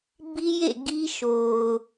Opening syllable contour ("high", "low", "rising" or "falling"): high